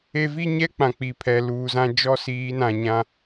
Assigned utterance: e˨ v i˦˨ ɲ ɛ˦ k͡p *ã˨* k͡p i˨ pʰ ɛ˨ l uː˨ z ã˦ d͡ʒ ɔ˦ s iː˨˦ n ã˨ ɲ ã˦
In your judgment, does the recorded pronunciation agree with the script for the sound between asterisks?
yes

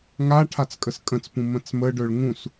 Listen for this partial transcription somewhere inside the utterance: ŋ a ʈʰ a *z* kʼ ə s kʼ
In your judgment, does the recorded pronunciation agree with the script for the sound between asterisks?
no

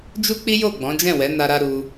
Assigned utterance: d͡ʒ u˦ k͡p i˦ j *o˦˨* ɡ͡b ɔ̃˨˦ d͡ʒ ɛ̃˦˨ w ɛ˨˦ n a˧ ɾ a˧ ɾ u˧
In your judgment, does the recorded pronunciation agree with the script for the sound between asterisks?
yes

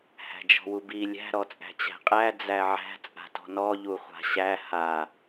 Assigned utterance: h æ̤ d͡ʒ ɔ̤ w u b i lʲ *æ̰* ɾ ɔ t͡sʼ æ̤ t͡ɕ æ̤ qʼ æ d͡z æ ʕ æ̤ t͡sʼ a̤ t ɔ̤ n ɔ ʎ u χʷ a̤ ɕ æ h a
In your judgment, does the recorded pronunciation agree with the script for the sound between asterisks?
no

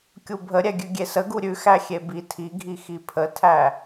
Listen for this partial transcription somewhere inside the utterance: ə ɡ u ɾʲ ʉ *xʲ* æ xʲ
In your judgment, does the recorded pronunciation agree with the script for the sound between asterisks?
no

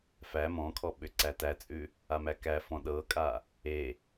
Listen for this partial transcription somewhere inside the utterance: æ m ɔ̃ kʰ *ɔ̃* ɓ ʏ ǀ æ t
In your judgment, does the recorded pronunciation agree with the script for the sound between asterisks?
no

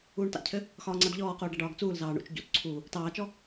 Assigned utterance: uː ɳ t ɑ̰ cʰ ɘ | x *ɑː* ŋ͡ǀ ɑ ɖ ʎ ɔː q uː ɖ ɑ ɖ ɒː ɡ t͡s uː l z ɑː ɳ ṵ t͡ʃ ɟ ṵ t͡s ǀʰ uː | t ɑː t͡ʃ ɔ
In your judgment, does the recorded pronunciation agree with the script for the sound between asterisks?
no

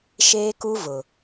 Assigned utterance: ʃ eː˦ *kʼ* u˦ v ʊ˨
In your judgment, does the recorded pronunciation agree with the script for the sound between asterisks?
no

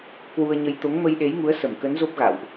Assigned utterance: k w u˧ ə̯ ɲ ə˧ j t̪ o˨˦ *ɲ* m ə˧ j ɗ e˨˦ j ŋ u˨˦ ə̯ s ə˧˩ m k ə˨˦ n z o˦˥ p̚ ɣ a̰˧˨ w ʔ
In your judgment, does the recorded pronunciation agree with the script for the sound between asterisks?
no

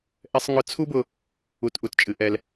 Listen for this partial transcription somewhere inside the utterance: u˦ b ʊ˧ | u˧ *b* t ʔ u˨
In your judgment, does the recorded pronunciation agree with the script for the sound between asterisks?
no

